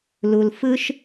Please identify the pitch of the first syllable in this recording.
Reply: high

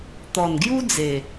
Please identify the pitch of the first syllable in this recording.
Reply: low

